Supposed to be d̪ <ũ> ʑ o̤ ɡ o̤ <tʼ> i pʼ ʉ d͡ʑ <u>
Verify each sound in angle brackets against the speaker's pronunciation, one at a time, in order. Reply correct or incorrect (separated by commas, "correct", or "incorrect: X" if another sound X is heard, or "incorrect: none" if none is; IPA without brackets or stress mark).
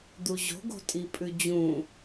incorrect: u, correct, incorrect: ũ